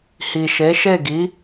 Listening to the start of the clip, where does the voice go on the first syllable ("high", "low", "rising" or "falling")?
low